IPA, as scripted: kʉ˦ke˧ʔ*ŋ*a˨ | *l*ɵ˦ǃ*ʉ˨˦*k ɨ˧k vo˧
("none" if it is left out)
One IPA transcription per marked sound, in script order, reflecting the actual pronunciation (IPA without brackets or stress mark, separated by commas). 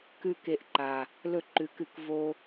ǃ, l, ʉ˨˦